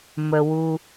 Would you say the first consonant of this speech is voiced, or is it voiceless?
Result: voiced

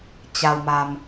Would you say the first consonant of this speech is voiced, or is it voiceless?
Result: voiceless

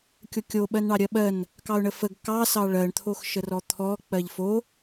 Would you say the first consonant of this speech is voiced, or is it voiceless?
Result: voiceless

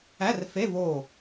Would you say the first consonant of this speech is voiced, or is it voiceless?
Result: voiced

